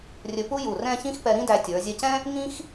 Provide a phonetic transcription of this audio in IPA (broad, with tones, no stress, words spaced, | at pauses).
rʲɵ˧pu˥ju˧˩rɛ̃˥˧ çĩ˥xpɛ˧ɾĩ˥dæ˧ tʲə˞˩˧ zʲɛ˧cɛ̃˥ | ŋĩ˥x